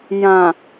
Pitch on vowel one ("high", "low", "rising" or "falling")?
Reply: low